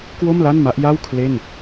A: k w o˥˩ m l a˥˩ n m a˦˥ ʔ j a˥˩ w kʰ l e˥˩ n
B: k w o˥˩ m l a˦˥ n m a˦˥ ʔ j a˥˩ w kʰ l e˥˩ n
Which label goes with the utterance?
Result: A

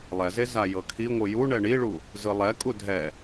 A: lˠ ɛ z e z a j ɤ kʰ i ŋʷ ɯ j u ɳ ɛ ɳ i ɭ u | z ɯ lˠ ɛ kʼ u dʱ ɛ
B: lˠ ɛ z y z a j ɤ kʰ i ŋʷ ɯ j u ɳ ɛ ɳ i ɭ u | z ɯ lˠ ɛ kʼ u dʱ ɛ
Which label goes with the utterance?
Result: A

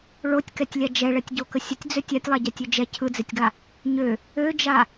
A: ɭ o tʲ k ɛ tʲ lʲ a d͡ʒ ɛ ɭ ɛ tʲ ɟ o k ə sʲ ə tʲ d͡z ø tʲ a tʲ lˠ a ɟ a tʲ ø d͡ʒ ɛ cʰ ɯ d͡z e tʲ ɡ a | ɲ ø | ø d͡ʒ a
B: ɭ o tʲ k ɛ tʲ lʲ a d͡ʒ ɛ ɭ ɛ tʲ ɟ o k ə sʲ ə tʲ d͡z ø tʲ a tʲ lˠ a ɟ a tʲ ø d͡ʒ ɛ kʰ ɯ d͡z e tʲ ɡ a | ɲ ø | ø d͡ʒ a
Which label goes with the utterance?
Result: A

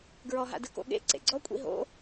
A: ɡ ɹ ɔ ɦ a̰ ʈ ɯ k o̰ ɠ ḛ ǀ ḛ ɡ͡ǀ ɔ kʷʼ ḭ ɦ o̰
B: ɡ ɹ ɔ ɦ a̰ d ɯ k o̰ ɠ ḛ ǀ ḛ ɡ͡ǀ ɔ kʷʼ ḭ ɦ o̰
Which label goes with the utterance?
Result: B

